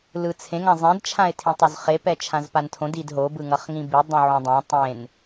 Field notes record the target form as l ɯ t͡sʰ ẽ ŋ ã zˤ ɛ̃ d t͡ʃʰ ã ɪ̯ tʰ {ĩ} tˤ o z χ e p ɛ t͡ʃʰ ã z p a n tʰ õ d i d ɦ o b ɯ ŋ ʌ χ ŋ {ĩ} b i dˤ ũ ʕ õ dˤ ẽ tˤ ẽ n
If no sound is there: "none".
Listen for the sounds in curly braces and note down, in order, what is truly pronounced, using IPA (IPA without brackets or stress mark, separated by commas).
ĩ, ĩ